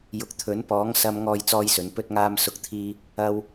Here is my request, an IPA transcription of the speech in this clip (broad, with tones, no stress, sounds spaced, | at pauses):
j ʊ˨ k̚ t̪ʰ ɵ˨˥ n p ɔː˨˥ ŋ s ɐ˧ m ŋ ɔː˥ j t͡s ɔː˥ j s ɵ˨˥ n p ɵ˥ t̚ ŋ aː˥ m s ʊ˥ k̚ t̪ʰ iː˥ | ɐ˧ w